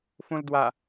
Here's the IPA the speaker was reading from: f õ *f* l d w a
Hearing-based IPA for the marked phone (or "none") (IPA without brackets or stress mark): none